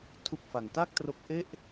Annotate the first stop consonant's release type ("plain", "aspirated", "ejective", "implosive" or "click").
aspirated